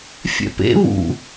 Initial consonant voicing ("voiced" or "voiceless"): voiceless